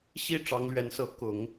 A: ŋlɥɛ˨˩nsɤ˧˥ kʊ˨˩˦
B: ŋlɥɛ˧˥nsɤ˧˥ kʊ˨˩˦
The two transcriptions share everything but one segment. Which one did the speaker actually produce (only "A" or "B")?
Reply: B